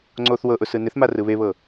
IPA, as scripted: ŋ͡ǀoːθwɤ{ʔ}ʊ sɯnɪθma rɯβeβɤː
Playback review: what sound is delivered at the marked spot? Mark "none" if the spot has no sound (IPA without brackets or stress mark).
ʔ